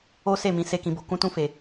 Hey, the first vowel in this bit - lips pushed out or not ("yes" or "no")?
yes